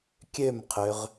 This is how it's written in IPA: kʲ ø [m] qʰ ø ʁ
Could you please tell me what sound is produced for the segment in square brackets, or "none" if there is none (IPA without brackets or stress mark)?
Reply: m